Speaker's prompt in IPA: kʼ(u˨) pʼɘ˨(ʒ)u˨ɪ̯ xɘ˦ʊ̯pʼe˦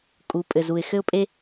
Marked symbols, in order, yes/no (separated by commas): no, no